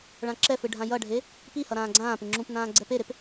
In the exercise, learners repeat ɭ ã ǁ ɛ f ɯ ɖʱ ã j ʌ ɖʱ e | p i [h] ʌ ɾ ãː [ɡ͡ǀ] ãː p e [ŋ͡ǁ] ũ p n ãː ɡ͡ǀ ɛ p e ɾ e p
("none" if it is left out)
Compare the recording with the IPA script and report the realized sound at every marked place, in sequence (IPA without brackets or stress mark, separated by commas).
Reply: h, ɡ͡ǀ, ŋ͡ǁ